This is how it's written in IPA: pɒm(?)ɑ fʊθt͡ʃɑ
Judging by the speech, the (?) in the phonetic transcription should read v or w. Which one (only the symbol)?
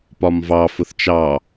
v